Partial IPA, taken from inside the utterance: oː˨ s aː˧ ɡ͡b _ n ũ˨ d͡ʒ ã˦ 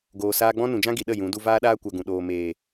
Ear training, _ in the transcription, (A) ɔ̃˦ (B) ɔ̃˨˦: A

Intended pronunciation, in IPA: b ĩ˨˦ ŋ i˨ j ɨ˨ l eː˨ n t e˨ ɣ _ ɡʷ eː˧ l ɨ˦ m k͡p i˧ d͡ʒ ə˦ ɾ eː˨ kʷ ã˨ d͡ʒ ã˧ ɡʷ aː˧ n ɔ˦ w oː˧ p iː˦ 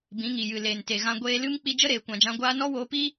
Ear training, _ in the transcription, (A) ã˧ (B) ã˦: A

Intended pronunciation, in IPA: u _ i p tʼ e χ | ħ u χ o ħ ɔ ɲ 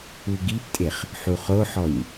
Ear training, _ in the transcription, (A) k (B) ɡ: B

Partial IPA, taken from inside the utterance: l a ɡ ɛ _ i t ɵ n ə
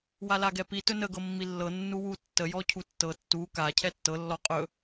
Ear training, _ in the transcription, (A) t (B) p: B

